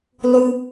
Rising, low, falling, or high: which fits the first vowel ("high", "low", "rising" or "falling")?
high